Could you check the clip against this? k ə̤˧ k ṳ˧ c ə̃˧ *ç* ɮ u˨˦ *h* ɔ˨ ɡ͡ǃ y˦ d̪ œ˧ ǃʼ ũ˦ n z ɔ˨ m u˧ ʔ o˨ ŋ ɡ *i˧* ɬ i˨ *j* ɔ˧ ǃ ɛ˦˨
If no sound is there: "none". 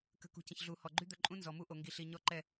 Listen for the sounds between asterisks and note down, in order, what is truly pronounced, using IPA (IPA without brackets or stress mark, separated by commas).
ç, h, i˨, ɲ